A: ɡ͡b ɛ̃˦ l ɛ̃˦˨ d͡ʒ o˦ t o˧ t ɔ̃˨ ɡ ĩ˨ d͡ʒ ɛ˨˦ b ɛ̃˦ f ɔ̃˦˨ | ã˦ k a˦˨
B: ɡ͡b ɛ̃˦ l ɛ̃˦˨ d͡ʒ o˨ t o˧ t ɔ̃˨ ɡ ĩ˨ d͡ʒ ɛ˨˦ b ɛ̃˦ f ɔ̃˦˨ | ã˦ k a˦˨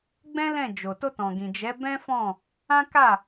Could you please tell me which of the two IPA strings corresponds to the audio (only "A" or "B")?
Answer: B